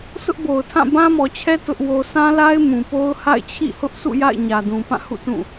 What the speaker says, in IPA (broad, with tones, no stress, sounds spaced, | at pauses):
sʰ ʊ˦ ʔ b o˨ ʊ̯ tʰ ã˦˨ b ã˦ m ɔ˨ t͡ɕʰ ɛ˦ t ʊ˦ ʔ w o˦ sʰ ã˦ l a˦ ɪ̯ m ũ˨ p o˦ ʊ̯ h a̰˦˨ ɪ̯ t͡ɕʰ ḭ˦˨ h ʊ˦ ʔ sʰ ṵ˦˨ j a̰˦˨ ɪ̯ ɲ ä˨ d ũ˨ p ã˦˨ h ṵ˦˨ t ũ˦˨